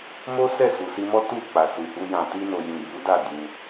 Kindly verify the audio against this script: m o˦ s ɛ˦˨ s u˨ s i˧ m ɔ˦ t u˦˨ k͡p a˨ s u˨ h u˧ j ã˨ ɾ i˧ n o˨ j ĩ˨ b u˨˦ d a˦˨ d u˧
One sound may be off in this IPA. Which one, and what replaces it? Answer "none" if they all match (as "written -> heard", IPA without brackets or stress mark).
ɾ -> t